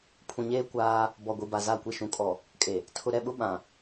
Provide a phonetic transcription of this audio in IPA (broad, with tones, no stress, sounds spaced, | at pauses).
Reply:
pʰ ũ˨ ɲ eː˦ kʷ aː˦ | b ɔ˨ ɡʷ i˨ b a˨ z a˦˨ kʷ i˦ ʃ ũ˨ kʼ ɔ˨ | kʼ e˨ | tʰ ʊ˨ ɾ ɛ˦˨ ɓ ʊ˦ ɓ ã˨